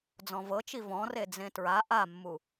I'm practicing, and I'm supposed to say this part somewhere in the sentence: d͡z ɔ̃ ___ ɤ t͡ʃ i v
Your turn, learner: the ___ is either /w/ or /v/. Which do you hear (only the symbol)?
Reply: v